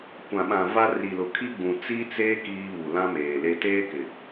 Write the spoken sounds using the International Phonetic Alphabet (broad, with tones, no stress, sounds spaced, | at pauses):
kʷ ã˨ ɓ ã˨ v a˦ r i˨ l ʊ˨ kʰ i˦ ɡ͡b ũ˨ t͡s i˦ t͡s eː˦ k iː˦ β u˨ l ã˦ m eː˨ l e˦ t eː˦ k ɪ˨